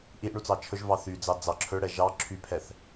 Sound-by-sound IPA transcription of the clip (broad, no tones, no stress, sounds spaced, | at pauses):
ʔ i ʔ ɳ u t͡s ɑ t͡ʃʰ ɵ ʒ v ɑ θ y d͡z ɑ d͡z ɑ ǁʰ ɵ ɽ ɛ ʒ ɑ ǁʰ y pʰ ɛ θ